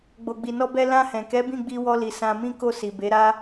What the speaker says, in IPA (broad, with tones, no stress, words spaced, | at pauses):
ɡ͡bo˨ɡ͡bi˨nɔ˧bɛ˧ lã˧hɛ̃˨kɛ˨˦ bĩ˦˨ɡ͡bi˧wɔ˧li˨ sã˧mĩ˦ ko˦˨si˨be˨˦ɾa˦